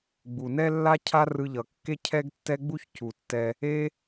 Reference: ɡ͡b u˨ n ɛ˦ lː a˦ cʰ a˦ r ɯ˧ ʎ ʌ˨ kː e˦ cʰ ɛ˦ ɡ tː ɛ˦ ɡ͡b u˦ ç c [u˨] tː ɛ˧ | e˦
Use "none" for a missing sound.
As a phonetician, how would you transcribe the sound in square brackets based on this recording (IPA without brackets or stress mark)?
u˨